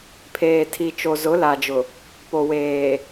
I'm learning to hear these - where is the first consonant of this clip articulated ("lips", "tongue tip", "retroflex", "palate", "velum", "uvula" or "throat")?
lips